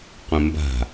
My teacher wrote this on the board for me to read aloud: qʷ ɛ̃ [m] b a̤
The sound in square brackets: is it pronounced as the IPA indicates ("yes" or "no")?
yes